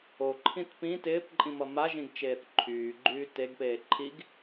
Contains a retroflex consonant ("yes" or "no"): no